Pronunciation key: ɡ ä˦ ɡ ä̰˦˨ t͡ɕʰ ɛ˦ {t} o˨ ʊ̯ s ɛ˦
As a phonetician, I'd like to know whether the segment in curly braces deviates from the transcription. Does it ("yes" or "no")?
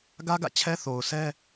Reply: yes